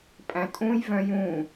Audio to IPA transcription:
pʼæ̃tʼũj vœ̃jũ

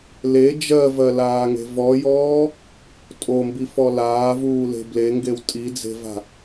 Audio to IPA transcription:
le d͡ʒɜvɜlaːŋe̤ vɔjɔː | tʼombifɔ laːvuːle̤ bleŋɡew tʼid͡ze̤va̤

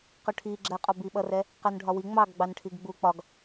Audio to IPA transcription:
qʊʈʰiɡ͡ǁɜqʼɒ biɓʌrɛ | qɜnɖʱɒwi ŋ͡mɑɡ ɡ͡bɑnʈʰiɡɡ͡bu k͡pɒɡ

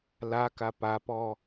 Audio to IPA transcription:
laka papɔ

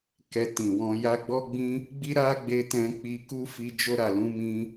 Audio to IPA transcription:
kɛ˧ tĩ˨wɔ̃˧ja˦ ɡ͡bɔ˦ɡ͡bĩ˦ | ɡ͡bi˦ɾa˦ɡ͡be˧ tɛ̃˧ k͡pi˧ku˦fi˧ d͡ʒo˧ɾa˨ lũ˧mĩ˧

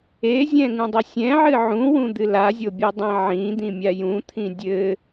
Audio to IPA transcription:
ezʲɛ̃ ŋũdˤɘsʲɛ̃ʕɨ ʕũwũd̪ɨ lazʲobʲudˤẽ ʕĩd̪ĩmʲa jũt̪ʰĩ dʲɘ

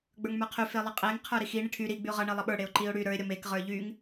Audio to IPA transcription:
ɡ͡bə˞ŋmə˞qʰy felˠʌqʼeŋ qʰə˞ɾixi ɳiʈʰy ɾi ɡ͡byʊ̯ʁʌ ɳelˠʌɓə˞ ɽeʊ̯ǃiʊ̯ɽy ɾə˞ɪ̯ ɾʲʌmek ʁə˞ʎyŋ

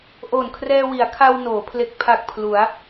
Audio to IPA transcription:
ʔoː˨˩nkʰrɛː˧wi˩˦a̯kʰa˧w noː˩˦ pʰle˨˩k̚pʰa˨˩k̚ pʰlu˩˦a̯

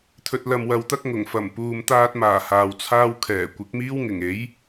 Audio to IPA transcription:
t̪ʰɵ˧t̚lɐ˧m wɐ˨˧wt̪ɐ˥k̚ ŋʊ˨˩ŋ fɐ˨˩mpuː˨mt̪aː˧t̚maː˨˩ haː˨wt͡sʰaː˥w kʰɛː˨˩ kʷɪ˨˥k̚miː˥wŋɪ˨˩ŋe˨˥j

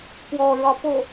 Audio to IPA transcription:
kwɔɹɒ po

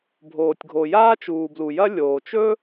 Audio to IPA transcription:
bʱoː˩tʲɡʱo˩ jaː˥t͡ʃuː˩blu˩jɐ˥ lʲoː˩t͡ʃɵ˥

